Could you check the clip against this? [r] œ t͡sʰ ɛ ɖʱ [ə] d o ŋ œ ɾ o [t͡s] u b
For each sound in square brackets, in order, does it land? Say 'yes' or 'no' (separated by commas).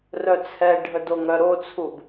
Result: yes, yes, no